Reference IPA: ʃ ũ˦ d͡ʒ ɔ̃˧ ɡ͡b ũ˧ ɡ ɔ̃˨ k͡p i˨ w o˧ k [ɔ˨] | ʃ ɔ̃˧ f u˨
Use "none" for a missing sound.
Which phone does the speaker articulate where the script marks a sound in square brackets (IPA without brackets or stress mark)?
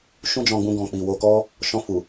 ɔ˦